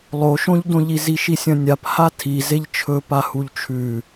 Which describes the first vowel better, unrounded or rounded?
rounded